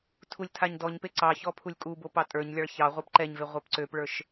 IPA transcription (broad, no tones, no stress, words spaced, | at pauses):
tʰulʲtʰaɲdɔɲpe ǀɑçɔ pʰulʲkʼubo pɑtʼə˞ɲlʲɑɭ çɑ ʁʷə˞pǃɛɲve ʁʷɛpǀøpɭə˞ʃ